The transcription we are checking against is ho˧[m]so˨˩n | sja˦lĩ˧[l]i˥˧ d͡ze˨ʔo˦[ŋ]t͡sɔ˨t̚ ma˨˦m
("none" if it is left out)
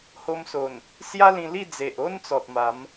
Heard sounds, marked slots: m, l, n

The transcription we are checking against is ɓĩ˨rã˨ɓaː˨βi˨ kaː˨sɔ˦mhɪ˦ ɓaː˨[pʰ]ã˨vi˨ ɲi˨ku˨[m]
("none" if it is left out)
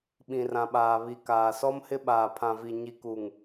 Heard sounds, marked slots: pʰ, ŋ

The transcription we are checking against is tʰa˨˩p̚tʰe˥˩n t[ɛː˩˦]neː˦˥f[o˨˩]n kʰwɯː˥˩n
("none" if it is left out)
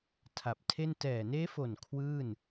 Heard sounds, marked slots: ɛː˨˩, o˨˩

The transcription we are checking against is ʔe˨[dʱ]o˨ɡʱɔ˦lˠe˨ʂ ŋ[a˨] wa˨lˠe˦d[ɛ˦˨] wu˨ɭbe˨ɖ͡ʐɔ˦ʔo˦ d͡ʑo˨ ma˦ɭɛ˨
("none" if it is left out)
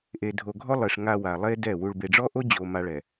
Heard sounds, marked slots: dʱ, a˨, ɛ˦˨

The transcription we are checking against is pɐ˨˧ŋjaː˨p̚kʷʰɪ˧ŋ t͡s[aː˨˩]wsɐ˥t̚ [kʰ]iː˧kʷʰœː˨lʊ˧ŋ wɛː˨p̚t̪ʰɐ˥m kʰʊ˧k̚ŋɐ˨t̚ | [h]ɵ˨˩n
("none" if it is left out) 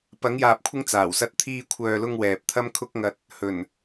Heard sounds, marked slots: aː˨˩, t̪ʰ, h

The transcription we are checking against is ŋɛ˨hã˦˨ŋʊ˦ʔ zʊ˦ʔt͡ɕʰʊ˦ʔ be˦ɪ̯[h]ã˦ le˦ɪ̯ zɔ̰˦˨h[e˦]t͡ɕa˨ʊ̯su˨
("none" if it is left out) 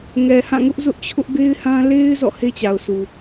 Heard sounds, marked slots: h, e˦

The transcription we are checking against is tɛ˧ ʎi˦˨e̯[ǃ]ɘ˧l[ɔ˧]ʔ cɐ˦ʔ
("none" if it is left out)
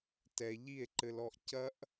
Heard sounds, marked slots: ǃ, ɔ˧

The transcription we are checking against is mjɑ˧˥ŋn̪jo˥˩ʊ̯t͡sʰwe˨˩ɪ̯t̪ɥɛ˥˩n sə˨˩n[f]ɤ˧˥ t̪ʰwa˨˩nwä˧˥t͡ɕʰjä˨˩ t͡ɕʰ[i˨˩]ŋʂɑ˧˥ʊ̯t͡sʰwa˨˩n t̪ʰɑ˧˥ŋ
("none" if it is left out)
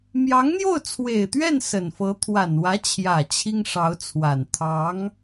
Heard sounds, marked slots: f, i˥

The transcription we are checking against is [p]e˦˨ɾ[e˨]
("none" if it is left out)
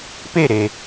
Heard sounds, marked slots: p, e˨

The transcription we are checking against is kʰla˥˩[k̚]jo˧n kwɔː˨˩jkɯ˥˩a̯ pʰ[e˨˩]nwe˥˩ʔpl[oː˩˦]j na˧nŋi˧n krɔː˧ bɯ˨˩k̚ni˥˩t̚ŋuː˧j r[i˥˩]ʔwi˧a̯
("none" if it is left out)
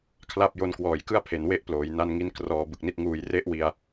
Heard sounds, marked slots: p̚, e˨˩, oː˩˦, e˥˩

